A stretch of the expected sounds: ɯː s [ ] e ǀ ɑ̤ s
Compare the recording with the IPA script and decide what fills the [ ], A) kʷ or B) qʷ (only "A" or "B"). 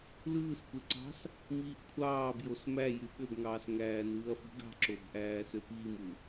A